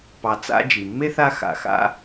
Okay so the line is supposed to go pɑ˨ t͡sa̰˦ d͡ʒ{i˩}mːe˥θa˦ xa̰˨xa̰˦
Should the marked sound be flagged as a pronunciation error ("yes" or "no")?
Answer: no